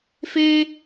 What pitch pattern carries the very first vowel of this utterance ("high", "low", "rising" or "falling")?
high